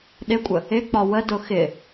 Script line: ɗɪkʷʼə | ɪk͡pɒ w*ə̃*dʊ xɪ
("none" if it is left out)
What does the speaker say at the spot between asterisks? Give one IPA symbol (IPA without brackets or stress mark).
ə